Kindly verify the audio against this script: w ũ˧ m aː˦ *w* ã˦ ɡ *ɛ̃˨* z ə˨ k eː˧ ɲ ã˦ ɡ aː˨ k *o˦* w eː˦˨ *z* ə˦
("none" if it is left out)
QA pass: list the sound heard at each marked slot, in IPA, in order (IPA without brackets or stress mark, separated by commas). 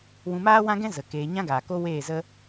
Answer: w, ɛ̃˦, o˦, z